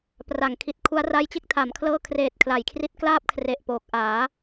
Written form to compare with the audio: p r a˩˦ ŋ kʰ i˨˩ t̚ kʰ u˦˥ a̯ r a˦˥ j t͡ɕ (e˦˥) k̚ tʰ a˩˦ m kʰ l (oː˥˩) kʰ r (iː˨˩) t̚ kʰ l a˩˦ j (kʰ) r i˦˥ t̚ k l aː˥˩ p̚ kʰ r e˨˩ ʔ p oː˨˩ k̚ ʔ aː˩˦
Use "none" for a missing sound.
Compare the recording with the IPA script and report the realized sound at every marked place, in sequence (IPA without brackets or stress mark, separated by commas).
e˦˥, ɤː˥˩, eː˨˩, kʰ